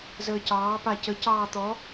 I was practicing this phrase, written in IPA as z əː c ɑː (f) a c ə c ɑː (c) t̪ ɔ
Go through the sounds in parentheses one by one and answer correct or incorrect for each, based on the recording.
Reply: incorrect, incorrect

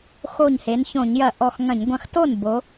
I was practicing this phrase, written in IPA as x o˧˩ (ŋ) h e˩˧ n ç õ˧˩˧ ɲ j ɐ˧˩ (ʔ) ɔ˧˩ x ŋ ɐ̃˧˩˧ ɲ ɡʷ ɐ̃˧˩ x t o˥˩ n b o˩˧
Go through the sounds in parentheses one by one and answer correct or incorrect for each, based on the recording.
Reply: incorrect, correct

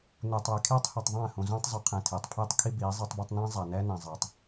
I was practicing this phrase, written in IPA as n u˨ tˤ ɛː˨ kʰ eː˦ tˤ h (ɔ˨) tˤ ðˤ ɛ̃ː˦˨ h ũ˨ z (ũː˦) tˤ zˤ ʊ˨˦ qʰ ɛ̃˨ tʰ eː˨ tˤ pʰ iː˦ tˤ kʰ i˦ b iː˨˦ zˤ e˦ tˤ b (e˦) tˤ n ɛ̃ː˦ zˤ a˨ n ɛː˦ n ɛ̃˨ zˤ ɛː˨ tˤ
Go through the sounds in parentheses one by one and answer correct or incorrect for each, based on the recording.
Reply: incorrect, correct, correct

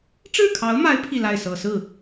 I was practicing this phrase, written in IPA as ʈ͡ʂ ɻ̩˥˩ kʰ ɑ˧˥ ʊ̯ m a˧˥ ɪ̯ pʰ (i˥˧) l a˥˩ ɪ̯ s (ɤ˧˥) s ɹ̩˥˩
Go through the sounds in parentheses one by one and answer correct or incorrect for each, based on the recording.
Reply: correct, incorrect

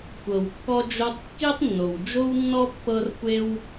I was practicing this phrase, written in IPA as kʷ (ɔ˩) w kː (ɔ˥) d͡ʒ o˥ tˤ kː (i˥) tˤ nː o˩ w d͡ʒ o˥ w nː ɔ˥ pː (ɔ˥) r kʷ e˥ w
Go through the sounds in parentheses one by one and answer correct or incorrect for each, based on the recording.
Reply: incorrect, correct, correct, incorrect

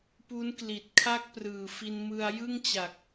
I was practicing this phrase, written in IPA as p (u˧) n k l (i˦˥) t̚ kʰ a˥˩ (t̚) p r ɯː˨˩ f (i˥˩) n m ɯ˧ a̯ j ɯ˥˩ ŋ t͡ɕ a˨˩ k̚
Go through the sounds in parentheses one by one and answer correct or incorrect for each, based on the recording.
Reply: incorrect, incorrect, incorrect, incorrect

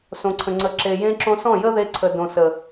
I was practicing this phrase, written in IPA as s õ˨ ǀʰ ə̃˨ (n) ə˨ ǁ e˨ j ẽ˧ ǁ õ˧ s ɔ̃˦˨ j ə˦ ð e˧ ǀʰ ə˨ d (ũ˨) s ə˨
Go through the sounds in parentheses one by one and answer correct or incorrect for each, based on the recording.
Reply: incorrect, incorrect

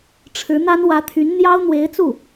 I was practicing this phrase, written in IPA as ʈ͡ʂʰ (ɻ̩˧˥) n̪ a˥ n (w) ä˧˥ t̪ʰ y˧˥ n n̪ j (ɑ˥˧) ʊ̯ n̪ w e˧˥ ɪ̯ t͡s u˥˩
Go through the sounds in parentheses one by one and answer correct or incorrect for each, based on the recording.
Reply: correct, correct, incorrect

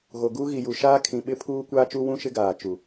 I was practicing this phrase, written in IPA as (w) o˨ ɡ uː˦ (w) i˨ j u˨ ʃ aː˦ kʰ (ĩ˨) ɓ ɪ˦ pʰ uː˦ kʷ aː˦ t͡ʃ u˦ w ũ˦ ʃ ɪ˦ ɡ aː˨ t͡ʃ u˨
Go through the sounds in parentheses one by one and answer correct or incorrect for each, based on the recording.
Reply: incorrect, incorrect, correct

